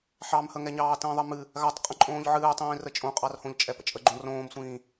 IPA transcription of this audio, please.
ħɑmhəŋɛɲɑː tə̃ːðˤɨmɨ | ɣatˤ qʼə̃ǃʼõːʎʕɨːtˤĩː rət͡ʃʼõqʼɑrhõʎ t͡ʃʼɛpə̰t͡ʃʼəɡ͡ǃõ rõːmsʷĩː

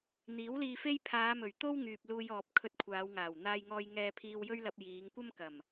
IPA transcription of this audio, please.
n̪iː˨˥wliː˧fe˥j pʰaː˨˧mɵ˨˩ɥt̪o˥w ŋyː˨p̚luː˧jɔː˨p̚ kʰɵ˧t̚kʷʰaː˨˧wŋaː˨˩w n̪aː˧jŋɔː˧jŋɛː˧ pʰiː˧wjɵ˥ɥ lɐ˧p̚jiː˨˧ŋ kʷɐ˥mkɐ˨˩m

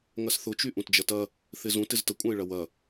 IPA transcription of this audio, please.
ŋɐsθʊt͡ʃy ʔũtd͡ʒɐtɐ | θɪzũ tɪztəkʷʼɐ̃ɪ̯ɭɐ wɐ

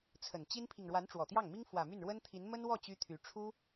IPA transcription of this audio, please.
t͡sʰə˨˩nt͡ɕi˥npʰi˨ŋ ɻwa˧˥nʈ͡ʂwɔ˨˩t̪jɑ˥˩ŋmi˥ŋ fwä˨˩my˥˩nɻwə˥nt̪ʰi˧˥n mə˥nwɔ˥˩ t͡ɕy˥t̪ʰy˧˥ ʈ͡ʂʰu˥

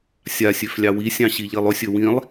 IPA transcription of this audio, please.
sʲasʲøf lʲɑwisʲɑ̃ ɕiʎilˠɵsʲɵ wĩlˠ

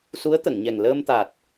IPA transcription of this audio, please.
su˧˥ə̯t̪ə˨˩˨ŋɲɛ˨˩ŋ ləː˧mt̪a˨˩t̚

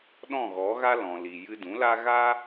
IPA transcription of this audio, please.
ɗɔ̃˦˨ɣɔ˨˦ɣa˦ lɔ̃˨li˨ jɨ˧dũ˨˦la˦ ɣa˦

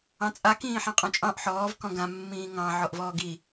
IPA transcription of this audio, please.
ɑ̃t͡sʼa kĩːħãqʼɔ̃t͡ʃʼɑ̃ʔ ħɔːv kɔ̃ɡã mːĩːŋɑ̃ ʕɔʔvɔːɡi

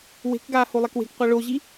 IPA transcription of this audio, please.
we̤kɡaː holˠɛkwe̤kqʷa ɭoʑi

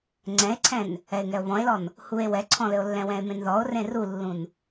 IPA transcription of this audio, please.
ŋ͡ǀɛ̃e̯ǀʰɛ̃n | ɛe̯ŋɛo̯βɔ̃e̯lɔn | hue̯ wɛǀʰɔ̃lɘo̯lːɛ̃ wɛ̃e̯mẽnðɔo̯ rẽrulːũn

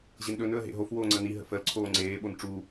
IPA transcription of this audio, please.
ʑenɗɵn ɵə̯ɦḛɦof woːŋ͡ǀəni ɦə̰fəl ǀʰoːŋ͡ǀeː ɓonʈ͡ʂu

